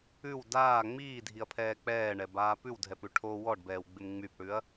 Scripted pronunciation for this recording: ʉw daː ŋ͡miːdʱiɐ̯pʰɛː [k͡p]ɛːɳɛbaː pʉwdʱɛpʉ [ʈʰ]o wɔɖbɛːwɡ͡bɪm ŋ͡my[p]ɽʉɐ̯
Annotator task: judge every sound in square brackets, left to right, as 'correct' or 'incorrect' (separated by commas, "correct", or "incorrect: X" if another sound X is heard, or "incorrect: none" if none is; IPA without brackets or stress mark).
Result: correct, correct, correct